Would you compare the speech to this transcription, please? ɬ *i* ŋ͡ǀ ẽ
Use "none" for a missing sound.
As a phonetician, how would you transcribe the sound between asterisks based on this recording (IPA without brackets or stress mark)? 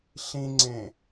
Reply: ĩ